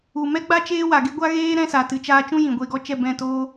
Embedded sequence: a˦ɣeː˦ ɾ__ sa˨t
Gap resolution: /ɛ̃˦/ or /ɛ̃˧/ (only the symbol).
ɛ̃˦